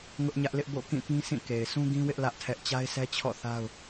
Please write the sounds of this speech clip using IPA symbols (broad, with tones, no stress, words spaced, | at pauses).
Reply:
ŋʊ˦ʔɲä˦ʔlɪ˦ʔ bo̰˦˨kĩ˦˨ pĩ˦sĩ˦˨ ke˨ɪ̯sʰũ˦ɡĩ˦wɪ˦ʔ lä˦ʔ tʰɛ˦ʔ t͡ɕa˦ɪ̯sɛ˦t͡ɕʰɔ̰˦˨ θa˦ʊ̯